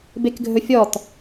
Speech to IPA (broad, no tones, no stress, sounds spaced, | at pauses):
b e k ɡʱ ɵ fʲ ɔ t